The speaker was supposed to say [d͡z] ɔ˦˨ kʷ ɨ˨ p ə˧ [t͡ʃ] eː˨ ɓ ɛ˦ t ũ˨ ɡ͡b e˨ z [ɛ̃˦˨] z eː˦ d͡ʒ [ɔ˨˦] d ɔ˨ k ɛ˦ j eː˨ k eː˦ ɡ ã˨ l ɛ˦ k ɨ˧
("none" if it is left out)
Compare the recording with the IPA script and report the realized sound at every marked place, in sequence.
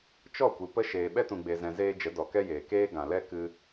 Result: t͡ʃ, ʃ, ɛ̃˨, ə˨˦

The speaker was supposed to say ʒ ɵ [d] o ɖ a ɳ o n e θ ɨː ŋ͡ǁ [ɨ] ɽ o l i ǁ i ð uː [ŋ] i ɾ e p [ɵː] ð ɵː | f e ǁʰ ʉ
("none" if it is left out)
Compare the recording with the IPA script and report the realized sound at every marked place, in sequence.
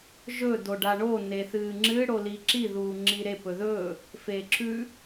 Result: d, ɨ, ŋ͡ǁ, ɵ

